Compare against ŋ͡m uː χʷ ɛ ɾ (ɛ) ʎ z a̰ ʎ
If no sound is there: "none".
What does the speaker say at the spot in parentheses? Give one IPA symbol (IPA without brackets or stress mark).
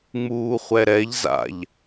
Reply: ɛ